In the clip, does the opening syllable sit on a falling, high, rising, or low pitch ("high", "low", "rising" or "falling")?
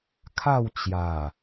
falling